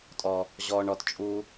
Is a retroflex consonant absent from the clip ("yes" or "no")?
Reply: no